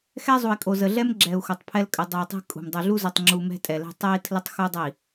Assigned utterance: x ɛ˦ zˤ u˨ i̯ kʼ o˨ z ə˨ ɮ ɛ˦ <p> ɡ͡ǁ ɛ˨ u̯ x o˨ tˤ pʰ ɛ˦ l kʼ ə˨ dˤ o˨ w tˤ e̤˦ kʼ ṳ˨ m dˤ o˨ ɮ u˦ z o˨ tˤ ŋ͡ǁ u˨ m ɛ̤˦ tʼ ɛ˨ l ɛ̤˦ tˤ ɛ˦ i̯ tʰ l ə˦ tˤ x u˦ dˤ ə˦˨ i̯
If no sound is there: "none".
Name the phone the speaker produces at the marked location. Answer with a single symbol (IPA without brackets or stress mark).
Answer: m